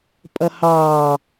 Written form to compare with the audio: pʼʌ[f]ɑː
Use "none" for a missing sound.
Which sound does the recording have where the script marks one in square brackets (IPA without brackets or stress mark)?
h